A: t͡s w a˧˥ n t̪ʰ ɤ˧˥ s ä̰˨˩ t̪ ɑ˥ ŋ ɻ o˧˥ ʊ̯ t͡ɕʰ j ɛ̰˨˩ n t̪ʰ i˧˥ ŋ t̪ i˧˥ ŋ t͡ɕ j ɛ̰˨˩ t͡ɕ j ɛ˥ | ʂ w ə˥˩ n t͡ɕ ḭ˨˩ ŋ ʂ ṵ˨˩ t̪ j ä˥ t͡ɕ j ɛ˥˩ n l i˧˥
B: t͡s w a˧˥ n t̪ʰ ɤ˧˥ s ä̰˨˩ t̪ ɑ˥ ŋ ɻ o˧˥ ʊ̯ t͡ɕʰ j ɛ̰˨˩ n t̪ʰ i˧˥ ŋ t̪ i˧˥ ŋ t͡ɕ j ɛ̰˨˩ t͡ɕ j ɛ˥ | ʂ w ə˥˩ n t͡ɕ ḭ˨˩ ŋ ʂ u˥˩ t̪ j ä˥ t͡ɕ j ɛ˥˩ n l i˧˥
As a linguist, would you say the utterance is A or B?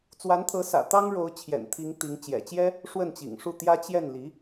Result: B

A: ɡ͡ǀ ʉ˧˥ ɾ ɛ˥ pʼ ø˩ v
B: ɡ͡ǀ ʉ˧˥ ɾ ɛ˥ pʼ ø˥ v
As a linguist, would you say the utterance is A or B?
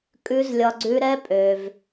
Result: A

